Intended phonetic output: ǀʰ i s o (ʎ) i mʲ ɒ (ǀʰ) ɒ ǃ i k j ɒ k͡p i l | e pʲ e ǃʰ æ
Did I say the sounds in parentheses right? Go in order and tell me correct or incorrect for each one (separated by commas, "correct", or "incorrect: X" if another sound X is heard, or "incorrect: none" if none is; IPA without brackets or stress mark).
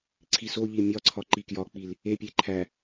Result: correct, correct